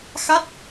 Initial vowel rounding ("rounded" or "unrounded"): unrounded